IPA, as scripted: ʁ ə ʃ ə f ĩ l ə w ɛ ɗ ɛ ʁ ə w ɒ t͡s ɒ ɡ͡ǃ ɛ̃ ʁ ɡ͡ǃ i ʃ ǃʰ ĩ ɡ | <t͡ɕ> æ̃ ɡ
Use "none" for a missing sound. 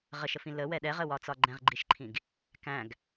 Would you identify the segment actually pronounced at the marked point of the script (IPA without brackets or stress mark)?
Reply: k